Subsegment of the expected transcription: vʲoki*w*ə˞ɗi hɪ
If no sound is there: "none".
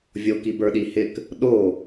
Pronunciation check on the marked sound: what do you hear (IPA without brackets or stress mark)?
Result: b